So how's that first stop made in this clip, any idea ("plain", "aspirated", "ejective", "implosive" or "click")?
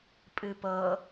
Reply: ejective